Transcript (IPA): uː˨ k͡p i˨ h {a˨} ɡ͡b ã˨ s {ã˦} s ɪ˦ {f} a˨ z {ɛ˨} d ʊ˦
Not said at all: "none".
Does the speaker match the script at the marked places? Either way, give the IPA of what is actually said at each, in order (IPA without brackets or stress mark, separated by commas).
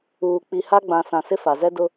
a˦, ã˨, f, ɛ˦